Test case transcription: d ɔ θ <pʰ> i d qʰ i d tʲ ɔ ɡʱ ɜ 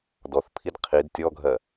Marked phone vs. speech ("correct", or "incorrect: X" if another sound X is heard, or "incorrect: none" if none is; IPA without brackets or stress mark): correct